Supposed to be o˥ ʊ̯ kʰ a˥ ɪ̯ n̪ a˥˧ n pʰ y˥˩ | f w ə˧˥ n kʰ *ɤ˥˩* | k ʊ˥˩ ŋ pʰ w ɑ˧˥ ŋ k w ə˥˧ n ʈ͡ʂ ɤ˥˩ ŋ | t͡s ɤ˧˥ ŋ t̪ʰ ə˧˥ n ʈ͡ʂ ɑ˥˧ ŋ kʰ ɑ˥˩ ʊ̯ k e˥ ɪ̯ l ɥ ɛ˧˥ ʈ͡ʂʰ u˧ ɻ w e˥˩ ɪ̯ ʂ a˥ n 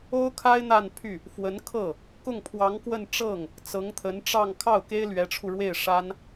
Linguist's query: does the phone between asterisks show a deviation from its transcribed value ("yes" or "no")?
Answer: no